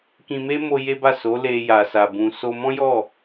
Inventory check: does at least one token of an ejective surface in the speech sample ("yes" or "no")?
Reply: no